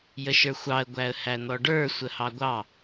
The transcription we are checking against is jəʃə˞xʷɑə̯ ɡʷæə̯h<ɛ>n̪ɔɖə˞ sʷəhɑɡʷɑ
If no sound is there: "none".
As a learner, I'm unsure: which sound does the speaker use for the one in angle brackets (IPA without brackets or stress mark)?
æ